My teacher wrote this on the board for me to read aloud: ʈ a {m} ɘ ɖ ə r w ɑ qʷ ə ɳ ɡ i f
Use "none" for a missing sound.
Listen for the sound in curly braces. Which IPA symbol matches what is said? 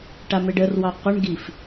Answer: m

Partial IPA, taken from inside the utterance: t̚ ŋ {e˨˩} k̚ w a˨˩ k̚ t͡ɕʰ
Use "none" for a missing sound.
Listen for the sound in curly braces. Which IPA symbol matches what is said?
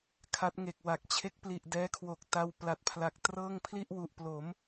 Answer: e˨˩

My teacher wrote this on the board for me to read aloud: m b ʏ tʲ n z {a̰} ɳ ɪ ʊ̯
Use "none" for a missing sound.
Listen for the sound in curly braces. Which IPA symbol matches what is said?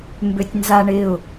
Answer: a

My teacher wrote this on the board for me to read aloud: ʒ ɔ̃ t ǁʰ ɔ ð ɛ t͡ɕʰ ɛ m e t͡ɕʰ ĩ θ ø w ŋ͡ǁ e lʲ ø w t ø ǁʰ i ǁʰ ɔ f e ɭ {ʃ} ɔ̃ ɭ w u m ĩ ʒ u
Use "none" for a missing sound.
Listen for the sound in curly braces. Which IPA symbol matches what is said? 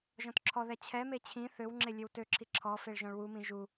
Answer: ʒ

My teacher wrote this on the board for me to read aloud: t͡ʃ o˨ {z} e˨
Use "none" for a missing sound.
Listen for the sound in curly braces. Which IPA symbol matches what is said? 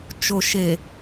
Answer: ʃ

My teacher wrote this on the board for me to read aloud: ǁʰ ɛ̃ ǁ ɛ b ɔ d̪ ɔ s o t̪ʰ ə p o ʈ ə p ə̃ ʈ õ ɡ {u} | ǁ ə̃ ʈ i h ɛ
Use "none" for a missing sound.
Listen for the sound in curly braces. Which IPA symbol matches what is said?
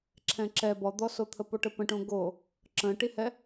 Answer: o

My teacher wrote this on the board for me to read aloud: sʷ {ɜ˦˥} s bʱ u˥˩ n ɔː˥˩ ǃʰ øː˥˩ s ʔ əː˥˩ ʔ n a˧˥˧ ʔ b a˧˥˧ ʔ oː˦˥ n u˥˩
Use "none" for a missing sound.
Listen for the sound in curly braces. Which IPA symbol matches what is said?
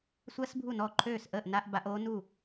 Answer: ɜ˦˥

